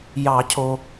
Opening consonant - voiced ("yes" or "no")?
yes